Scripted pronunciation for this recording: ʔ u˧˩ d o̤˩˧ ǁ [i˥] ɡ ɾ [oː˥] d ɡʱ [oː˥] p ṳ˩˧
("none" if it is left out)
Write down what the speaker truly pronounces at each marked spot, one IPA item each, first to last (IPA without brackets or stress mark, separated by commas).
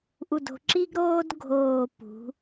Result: i˥, oː˥, oː˧˩